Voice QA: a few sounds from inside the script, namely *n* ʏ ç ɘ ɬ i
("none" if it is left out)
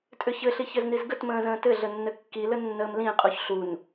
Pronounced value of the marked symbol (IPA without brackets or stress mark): tʼ